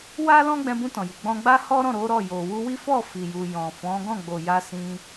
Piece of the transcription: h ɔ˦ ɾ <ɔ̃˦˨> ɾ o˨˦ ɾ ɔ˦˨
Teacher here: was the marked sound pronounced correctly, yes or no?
yes